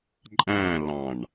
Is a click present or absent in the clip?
present